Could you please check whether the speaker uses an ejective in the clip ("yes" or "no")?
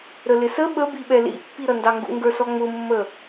no